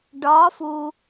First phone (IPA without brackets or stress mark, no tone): ɖ